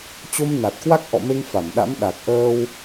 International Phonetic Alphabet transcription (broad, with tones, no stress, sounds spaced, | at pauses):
t͡ɕ o˧ m n a˨˩ t̚ k w a˦˥ k̚ ʔ ɔ̰˧˨ m e˧ ŋ f a˧˩ m ɗ a̰˧˥ m ɗ a˨˩ k̚ ʔ əː˧ w